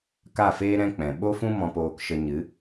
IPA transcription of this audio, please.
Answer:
k a˦˨ f eː˦ ɾ ɛ̃˦ k͡p ɛ̃˨ ɓ o˦ f ũ˦ m ɔ̃˧ p oː˧ k ʃ ə˧ ɲ ɨ˨˦

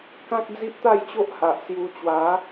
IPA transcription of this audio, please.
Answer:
k ã˦ k̚ d͡z i˦ ʔ t̪ a˥˧ j t͡ɕ o˦ ʔ h a˨ ʔ s j u˧ t͡ɕ w a˨˦

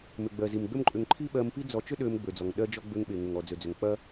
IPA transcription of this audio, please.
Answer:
m ʏ˩ ɡ͡b ɜ˩ z i˩ m ɡ͡b ø˥ m ǃʼ ʏ˧ ŋ ǃʰ i˥ ɓ ɜ˧ m p i˥ d͡z ɔ˧ t͡ʃ ʏ˥ ɗ ø˧ m ɡ͡b ø˩ d͡z ɔ˩ ŋ ɗ ɜ˥ d͡ʒ ɔ˥ ɡ͡b ø˧ ŋ ɓ e˩ ŋ ʏ˩ ŋ ɔ˩ d͡z ø˩ d͡z ʏ˩ ŋ k͡p ɐ˥

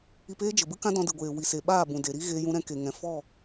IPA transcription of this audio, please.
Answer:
i˧ p eː˦ d͡ʒ ə˨ b ɨ˦ k ã˦ d ɔ̃˧ d ɨ˨ ɡʷ eː˨ w i˨ s e˨ ɓ aː˦˨ b ũ˨ d e˨ ɾ i˦ ɣ eː˧ j ũ˧ ɾ ɛ̃˧ k e˨ ŋ ɛ̃˨ f ɔ˦˨

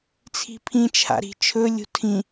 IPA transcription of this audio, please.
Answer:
t͡sʰ i̤ pʰ ĩ t͡ʃʰ a̰ ɾ i̤ t͡ʃʰ ɵ lʲ ṳ tʰ ĩ

